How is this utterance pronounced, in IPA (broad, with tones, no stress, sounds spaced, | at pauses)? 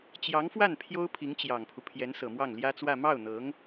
t͡ɕ j ɑ˧˥ ŋ f w a˥˩ n pʰ j o˥ ʊ̯ pʰ i˧˥ ŋ t͡ɕ j ɑ˨˩ ŋ pʰ u˦ pʰ j ɛ˧˥ n s ɤ˨˩ m w ɑ˥˩ ŋ l j ä˥ t͡s w ä˥˧ m ɑ˥˩ ʊ̯ n̪ ɤ˧˥ ŋ